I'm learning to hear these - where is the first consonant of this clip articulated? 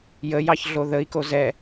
palate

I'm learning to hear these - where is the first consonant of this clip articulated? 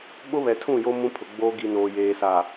lips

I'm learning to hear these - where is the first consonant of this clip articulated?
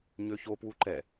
palate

